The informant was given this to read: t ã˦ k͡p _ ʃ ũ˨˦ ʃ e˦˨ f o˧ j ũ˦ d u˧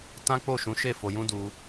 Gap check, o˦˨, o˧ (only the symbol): o˦˨